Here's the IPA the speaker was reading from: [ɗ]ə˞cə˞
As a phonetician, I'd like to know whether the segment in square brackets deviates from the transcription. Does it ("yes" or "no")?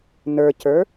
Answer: yes